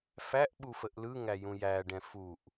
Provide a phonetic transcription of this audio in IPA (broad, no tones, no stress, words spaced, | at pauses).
fæʔɓufəʔ lɯŋæjũ jæɖɛ̃ fuʔ